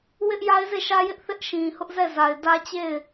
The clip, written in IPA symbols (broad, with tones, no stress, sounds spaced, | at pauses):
w ɪ˦ ʔ j a˦ ɪ̯ z e˦˨ ʃ ä˦ j ɪ˦ ʔ θ ɪ˦ ʔ ʃ ĩ˨ h ʊ˦ ʔ z ɛ˦˨ z a˨ ɪ̯ d ä˦ t͡ɕ e˦˨ ɪ̯